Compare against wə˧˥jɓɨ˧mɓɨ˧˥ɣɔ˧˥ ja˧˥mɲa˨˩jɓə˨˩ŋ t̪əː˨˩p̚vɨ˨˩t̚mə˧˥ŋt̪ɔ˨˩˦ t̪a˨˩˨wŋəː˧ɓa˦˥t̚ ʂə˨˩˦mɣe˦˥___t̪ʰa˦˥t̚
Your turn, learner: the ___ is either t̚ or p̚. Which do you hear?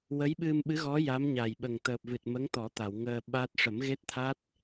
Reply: t̚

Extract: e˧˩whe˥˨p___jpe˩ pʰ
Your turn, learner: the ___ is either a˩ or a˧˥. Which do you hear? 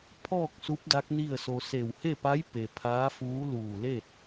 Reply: a˧˥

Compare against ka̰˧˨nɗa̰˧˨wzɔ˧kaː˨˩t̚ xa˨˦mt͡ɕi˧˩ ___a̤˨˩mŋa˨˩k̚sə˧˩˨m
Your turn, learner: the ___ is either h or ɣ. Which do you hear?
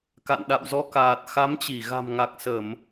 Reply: ɣ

